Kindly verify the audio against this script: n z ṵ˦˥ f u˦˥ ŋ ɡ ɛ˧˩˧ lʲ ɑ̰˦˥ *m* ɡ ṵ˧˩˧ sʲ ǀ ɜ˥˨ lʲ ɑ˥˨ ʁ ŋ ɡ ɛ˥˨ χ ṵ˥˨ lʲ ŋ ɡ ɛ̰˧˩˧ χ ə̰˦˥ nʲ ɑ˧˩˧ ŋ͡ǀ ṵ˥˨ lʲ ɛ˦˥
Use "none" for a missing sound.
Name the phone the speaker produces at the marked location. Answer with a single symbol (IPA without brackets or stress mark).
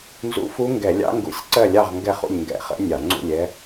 ŋ